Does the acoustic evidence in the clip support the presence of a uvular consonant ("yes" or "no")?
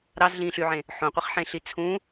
yes